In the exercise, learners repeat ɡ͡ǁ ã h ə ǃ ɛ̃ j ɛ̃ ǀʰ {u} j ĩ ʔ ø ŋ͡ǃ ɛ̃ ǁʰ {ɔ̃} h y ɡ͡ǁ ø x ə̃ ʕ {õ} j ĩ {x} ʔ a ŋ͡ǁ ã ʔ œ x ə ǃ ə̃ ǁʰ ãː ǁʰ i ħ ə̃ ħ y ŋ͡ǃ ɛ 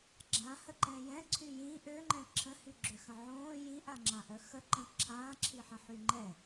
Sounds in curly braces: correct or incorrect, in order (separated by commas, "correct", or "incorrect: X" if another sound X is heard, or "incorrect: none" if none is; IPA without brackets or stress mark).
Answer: incorrect: y, incorrect: ə̃, incorrect: õː, incorrect: none